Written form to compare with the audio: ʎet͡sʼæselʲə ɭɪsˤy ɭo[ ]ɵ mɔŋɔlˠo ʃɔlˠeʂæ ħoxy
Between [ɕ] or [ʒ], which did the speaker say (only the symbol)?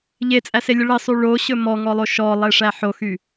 ɕ